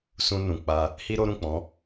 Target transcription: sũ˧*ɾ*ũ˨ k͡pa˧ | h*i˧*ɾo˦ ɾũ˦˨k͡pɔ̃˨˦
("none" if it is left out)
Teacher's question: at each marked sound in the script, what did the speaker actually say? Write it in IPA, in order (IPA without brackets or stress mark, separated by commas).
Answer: n, i˦